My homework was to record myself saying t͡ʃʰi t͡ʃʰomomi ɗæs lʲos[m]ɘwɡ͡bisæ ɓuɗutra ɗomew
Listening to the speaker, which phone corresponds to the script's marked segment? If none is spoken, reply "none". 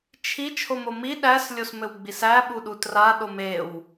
m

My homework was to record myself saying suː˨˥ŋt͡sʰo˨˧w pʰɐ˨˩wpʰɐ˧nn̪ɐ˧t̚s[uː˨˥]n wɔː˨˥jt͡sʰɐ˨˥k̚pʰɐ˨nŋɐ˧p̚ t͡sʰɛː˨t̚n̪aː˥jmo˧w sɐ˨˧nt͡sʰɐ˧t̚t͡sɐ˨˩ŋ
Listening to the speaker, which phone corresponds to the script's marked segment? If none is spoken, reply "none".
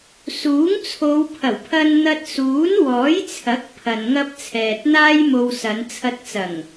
uː˨˥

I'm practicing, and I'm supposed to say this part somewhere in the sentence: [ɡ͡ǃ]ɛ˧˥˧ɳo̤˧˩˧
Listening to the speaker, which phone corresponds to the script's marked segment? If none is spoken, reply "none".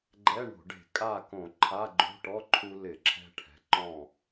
ɡ͡ǃ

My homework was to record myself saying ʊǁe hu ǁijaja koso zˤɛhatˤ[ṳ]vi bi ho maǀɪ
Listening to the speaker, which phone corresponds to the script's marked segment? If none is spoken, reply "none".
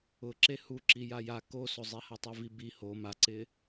u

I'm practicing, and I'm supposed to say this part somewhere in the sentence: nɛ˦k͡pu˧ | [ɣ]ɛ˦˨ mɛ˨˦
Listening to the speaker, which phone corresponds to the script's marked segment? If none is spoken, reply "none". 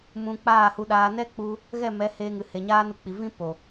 ɣ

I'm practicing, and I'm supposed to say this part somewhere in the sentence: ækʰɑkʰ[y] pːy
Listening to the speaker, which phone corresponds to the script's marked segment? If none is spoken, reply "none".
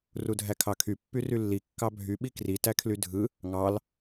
y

